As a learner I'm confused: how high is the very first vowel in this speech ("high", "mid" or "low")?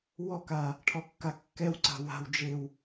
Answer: mid